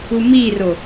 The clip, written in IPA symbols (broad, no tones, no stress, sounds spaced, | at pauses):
u m i r o